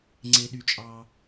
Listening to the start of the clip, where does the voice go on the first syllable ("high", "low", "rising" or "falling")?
low